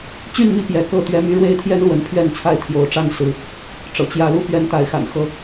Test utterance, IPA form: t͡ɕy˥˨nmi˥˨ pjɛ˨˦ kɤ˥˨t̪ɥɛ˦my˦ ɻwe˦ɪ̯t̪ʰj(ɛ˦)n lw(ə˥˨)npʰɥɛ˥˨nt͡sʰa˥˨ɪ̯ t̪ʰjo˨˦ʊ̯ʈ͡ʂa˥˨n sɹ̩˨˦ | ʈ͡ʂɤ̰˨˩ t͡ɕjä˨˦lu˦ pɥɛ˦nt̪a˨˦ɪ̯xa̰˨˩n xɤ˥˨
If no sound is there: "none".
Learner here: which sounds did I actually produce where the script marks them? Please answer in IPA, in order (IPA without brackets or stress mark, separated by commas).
ɛ˦, ə˨˦